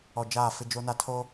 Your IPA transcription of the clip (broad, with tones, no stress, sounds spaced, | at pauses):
ɔ˨ d͡ʒ aː˦˨ f ɪ˦ d͡ʒ o˦ n a˦ tʰ o˦